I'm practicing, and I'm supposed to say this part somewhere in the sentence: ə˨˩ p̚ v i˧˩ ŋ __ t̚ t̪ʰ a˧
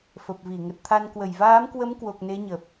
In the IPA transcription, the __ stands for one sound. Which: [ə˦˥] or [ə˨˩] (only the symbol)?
ə˨˩